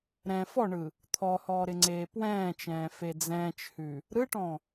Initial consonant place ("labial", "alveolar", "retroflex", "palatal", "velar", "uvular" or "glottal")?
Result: alveolar